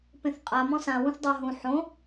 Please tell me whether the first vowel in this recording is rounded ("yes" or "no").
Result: no